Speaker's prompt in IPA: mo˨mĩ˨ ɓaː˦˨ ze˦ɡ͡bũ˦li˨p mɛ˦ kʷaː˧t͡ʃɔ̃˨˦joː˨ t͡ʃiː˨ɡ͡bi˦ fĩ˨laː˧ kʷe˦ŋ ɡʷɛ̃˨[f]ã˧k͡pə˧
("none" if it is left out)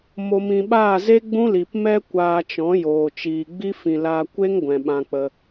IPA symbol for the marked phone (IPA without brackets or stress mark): ɓ